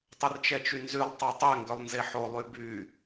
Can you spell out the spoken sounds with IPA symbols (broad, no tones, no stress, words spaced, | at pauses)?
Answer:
tˤərt͡ʃɛt͡ʃynzylˠ tˤɛtˤɛ ŋɡœlˠnzeħo lˠyby